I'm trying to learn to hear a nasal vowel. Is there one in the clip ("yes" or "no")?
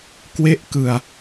no